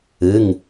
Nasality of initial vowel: oral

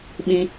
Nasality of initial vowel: nasal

